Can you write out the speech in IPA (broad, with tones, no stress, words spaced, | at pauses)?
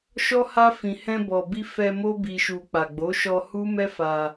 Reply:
ʃɔ˦ha˦fĩ˧ hɛ̃˧bɔ˨bi˧ fɛ˧ mo˦bi˧ʃu˧ k͡pa˨ɡ͡bo˨˦ʃɔ˧ hu˦mɛ˦fa˧